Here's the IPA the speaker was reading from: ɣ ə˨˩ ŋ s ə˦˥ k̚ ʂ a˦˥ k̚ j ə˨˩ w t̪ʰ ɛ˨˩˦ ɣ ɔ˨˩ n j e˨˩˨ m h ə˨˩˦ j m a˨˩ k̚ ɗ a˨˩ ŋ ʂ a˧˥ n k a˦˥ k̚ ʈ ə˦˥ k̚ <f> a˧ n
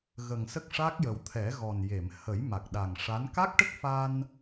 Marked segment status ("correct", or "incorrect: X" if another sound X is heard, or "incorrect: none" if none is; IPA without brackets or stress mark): correct